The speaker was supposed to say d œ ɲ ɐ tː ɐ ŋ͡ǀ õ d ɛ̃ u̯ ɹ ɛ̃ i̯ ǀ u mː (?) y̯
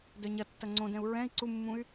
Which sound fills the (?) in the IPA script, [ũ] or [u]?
ũ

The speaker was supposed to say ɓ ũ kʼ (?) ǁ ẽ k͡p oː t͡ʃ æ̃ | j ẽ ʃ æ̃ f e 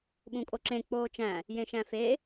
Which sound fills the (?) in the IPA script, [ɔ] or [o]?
o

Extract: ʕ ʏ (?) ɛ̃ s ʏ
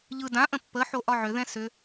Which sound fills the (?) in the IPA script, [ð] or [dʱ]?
ð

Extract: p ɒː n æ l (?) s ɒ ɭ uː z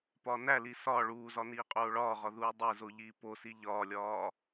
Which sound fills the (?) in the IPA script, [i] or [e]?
i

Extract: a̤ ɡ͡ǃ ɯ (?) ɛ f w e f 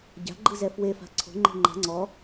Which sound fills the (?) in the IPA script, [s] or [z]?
z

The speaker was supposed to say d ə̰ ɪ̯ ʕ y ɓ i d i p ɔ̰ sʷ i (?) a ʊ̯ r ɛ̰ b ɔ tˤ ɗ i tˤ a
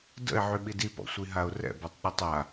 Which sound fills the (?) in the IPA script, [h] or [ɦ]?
ɦ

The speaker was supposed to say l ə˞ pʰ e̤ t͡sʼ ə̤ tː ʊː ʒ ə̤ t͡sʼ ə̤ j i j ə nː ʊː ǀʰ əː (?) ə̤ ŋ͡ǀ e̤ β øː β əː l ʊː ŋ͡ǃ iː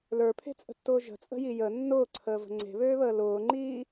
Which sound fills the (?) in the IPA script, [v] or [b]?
v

